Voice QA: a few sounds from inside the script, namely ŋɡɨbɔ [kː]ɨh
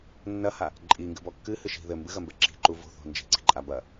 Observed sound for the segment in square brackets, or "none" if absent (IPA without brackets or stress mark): kː